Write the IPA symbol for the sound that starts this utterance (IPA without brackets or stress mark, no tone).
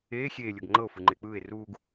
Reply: eː